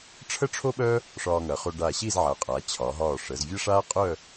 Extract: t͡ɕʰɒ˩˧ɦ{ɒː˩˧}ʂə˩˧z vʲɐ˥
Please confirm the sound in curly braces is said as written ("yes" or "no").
no